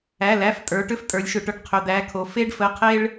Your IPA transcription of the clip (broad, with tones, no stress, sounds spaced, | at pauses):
æ˩˧˩ l æ˩˧˩ f tʼ ə˞˩˧ ʈ ʏ˦ f tʼ ə˞˩˧ lʲ ʃ ʏ˩˧ ʈ ʊ˩˧ ɖ qʰ ʏ˩˧˩ d̪ æ˩˧˩ kʰ o˩˧ f e˦ ɖ f ə˩˧˩ qʰ e˦ ɭ